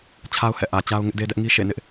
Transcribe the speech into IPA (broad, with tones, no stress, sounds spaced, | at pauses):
t͡ɕʰ a˦ ʊ̯ h ɛ̰˦˨ ʔ ä˨ t͡ɕ a˦ ʊ̯ ŋ ɪ˦ ʔ d e˦ d ɛ˦ ʔ ŋ i˦ ʃ ḛ˦˨ n ɪ˦ ʔ